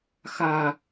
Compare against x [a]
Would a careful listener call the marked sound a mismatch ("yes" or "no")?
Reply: no